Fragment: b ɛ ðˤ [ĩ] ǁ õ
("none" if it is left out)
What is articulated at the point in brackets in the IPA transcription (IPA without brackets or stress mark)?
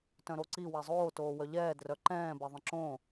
ĩ